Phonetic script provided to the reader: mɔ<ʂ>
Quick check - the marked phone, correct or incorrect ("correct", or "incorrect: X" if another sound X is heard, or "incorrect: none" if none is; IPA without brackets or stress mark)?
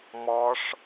correct